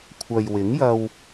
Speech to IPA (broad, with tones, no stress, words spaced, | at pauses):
kʷʰɐ˨jwɪ˨˥ŋjɐ˧w